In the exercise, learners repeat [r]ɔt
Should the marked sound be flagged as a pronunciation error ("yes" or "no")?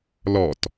yes